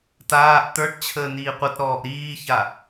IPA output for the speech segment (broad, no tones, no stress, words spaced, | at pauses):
taːʔ t̪ə˞ʈt͡ɕʰəː niːqʷətɾɔːʔ ɾiːça